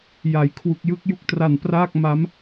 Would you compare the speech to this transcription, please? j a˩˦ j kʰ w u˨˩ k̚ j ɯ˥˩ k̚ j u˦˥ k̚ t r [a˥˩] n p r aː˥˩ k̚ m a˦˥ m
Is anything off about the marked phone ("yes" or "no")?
yes